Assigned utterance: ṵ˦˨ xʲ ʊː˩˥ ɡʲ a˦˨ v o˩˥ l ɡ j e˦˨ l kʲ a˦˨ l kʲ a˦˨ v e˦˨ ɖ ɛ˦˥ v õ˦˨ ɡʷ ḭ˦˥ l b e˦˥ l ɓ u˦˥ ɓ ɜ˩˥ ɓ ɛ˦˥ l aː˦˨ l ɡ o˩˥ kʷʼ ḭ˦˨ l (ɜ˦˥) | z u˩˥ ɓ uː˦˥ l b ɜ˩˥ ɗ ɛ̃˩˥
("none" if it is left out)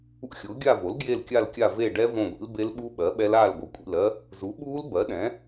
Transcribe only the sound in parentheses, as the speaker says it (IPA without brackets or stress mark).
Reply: ɜ˦˥